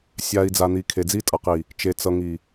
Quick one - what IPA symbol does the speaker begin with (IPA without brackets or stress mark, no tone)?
sʲ